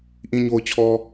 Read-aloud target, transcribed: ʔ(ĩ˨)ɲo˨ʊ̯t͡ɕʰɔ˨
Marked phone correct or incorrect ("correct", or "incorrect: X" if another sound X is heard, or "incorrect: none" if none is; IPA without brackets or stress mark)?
correct